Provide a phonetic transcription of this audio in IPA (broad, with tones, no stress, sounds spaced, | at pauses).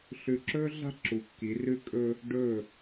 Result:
ɬ ʉ˧˩ ǁ ɵː˥ ɮ a̤˥ ǁ u˩˧ kː i˩˧ r ʉ˧ kʼ ɵː˧ | ɖ ɵː˧˩